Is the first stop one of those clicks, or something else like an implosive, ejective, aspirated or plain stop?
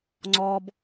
click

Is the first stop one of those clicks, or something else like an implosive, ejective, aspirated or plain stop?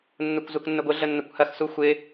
plain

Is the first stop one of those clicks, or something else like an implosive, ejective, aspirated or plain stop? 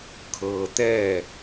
aspirated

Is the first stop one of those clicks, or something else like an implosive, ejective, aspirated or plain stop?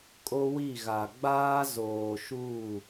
ejective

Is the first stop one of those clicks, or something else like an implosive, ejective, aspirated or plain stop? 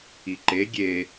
click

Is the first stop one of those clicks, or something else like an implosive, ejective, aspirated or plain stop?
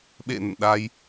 implosive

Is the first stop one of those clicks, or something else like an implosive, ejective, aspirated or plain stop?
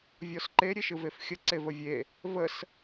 click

